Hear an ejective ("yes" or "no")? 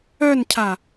no